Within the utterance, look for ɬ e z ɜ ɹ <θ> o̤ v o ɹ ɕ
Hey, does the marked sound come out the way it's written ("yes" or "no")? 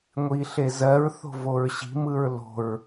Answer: yes